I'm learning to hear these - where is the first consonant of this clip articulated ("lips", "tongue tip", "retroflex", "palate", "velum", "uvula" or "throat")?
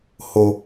throat